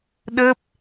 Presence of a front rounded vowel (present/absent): absent